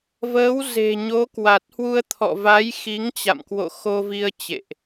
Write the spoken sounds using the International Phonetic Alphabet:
v əː˨˦ w z e̤˨˩ ɲ o˨˦ k w a˨˩ t̚ h w u˧ ə̯ t̪ʰ ɔ̰˧˨ v a˨˦ j x i˨˦ ŋ t͡ɕ a̰˧˨ m k w o̰˧˨ x o˧ v i˧ ə̯ t͡ɕ ḛ˧˨ ʔ

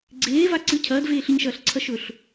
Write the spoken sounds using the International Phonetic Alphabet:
ɡ͡ǀ eː v a ǀ ɨ cʰ ɐː d v eː ɬ ɨ ɲ ʃ ɐː ɬ ǀʰ ɐ ʃ ɵ ɬ

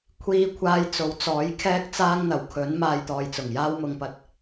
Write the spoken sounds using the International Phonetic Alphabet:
kʷʰ iː˨˧ kʷʰ aː˨˧ j t͡s o˨˥ w t͡s ɔː˨˥ j kʰ ɛː˥ k̚ t͡s aː˥ ŋ n̪ ɐ˨˩ w kʰ ɵ˨˥ n m aː˧ j t̪ ɔː˨ j t͡s ʊ˨˩ ŋ j aː˥ w m ʊ˧ ŋ p ɐ˧ t̚

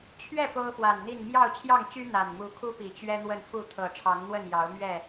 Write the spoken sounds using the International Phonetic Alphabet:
t͡ɕʰ ɥ ɛ˥˨ p o˦ ʊ̯ f w a˨˩ n n̪ i˥˨ n m j ɑ˥˨ ʊ̯ t͡ɕʰ j ɑ˥˨ ŋ t͡ɕ y˦ n̪ a˨˩ n m u˨˦ kʰ u˦ p i˨˩ t͡ɕ ɥ ɛ˦ n̪ w ə˥˨ n f u˥˨ t̪ʰ ɤ˨˩ ʈ͡ʂʰ ɑ˨˦ ŋ n̪ w ə˥˨ n j ɑ˨˦ ʊ̯ m ɥ ɛ˥˨

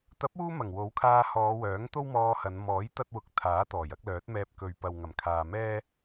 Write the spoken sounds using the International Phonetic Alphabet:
t̪ ɐ˨˥ p̚ uː˧ m ɐ˨˩ ŋ w o˨˥ w kʰ aː˧ h ɔː˨˧ w œː˨˥ ŋ t̪ o˥ w m ɔː˧ h ɐ˨˧ n m ɔː˨˥ j t̪ ɐ˥ t̚ w ʊ˧ k̚ t̪ʰ aː˨˥ t̪ ɔː˨˩ j ɐ˨˥ k̚ l œː˨˥ t̚ m ɛː˧ p̚ k ɵ˨ ɥ p ɐ˨ w ŋ ɐ˨˩ m kʰ aː˨ m ɛː˥

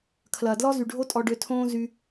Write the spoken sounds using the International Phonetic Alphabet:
kʰ l ɐː˨ d l ɔ˦ z y˨ ɖʱ o˦ tʼ ɔ˧ ɖ ø˧ tʰ õː˦ z y˦

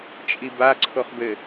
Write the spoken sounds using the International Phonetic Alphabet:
t͡ʃʼ i b a ǀʰ o χ b ɘ

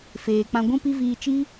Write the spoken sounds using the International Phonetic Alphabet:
f eː˨ k͡p ã˧ ɡʷ ũ˦ p i˦ v iː˧ t͡ʃ i˦

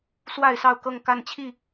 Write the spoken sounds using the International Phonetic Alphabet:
s w a˥˨ ɪ̯ s ɑ˥˨ ʊ̯ k ɤ˥˨ ŋ k a˥˨ n t͡ɕʰ i˥˨

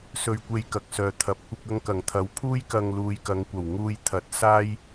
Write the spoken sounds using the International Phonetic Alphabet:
s ɵ˧ ɥ kʷ e˧ j k ɐ˨ k̚ s œː˨ t̪ʰ ɐ˨ p̚ kʷ ɪ˧ k̚ ɐ˧ ŋ k ɐ˨˩ ŋ t̪ʰ ɐ˨˥ w pʰ uː˥ j k ɐ˧ ŋ l uː˨ j k ɐ˨˧ ŋ kʷ ɐ˨˩ w ŋ uː˧ j t̪ʰ ɐ˨˥ t̚ s aː˥ j

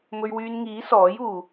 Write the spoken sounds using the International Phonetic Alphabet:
m ɵ˧ ɥ w yː˧ n ŋ iː˨˥ s ɔː˨˥ j uː˨

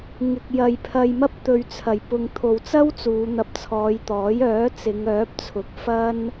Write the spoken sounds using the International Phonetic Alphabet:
ŋ ɪ˨ k̚ j ɐ˨ j pʰ ɐ˧ j m ɐ˥ p̚ t̪ ɵ˨ ɥ t͡sʰ ɐ˨˩ j p ʊ˨ ŋ t̪ʰ o˨ w t͡s ɐ˥ w t͡s uː˨˧ n̪ ɐ˧ p̚ t͡sʰ ɔː˨˧ j t̪ ɔː˨˥ j œː˨˥ t͡s ɪ˨˧ ŋ œː˨˥ p̚ t͡sʰ ʊ˨ k̚ f ɐ˥ n

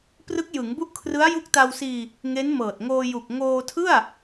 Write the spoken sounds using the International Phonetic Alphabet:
p r ɯ˦˥ k̚ j ɯ˩˦ ŋ b u˦˥ ʔ kʰ r ɯ˦˥ a̯ j u˦˥ k̚ t a˧ w s iː˧ | ŋ e˦˥ n m ɤː˨˩ t̚ ŋ oː˧ j u˨˩ k̚ ŋ oː˧ tʰ ɯ˥˩ a̯

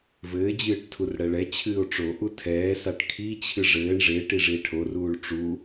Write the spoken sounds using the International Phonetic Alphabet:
v ɘː d͡ʑ ɨː ʈ tʰ u r ɽ ɛ ɭ ɛ t͡ɕʰ ɨː o̯ ʈ͡ʂ o ʔ u tʰ ɛː s a ʈ kʰ i t͡ɕʰ ɨ ʐ ɘː ɳ ʐ e ʈ i ʐ i e̯ ʈʰ o r uː ɭ ʈ͡ʂ u

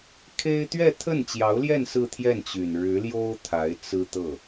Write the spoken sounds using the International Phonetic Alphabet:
kʰ e˥ ɪ̯ t̪ ɥ ɛ˥˧ t̪ʰ ə˥˩ n t͡ɕ j ɑ˧˥ ʊ̯ l j ɛ˥˧ n s ɹ̩˥˧ t̪ʰ j ɛ˥˩ n t͡ɕ y˨˩ n ɻ ɻ̩˧˥ l j o˥ ʊ̯ t̪ʰ a˧˥ ɪ̯ t͡s ɹ̩˥ t̪ ɤ˥˩

